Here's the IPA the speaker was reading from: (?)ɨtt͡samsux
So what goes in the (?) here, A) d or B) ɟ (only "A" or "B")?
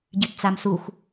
B